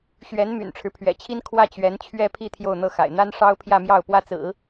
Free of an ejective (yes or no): yes